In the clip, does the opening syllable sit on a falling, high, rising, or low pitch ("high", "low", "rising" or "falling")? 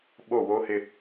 falling